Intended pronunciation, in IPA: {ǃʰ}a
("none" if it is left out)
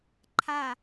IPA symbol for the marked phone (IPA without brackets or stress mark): ǃʰ